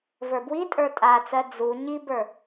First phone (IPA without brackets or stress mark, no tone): v